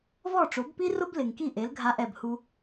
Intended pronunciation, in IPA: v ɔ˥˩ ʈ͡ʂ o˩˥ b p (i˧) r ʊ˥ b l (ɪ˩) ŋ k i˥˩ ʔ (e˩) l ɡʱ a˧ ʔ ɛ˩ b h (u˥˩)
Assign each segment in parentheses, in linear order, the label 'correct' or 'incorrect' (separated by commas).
incorrect, correct, incorrect, incorrect